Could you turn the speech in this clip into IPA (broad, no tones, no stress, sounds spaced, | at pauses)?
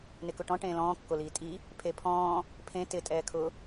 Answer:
n ɪ k ʊ ʈ ɔ̃ ʈ ẽː l ɔ̃ː kː o l iː tʼ i | pʰ e pʰ ɔ̃ː | pʰ ẽ t ɪ tʼ ɛː kʰ ʊ